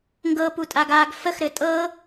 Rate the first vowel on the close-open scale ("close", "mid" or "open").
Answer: mid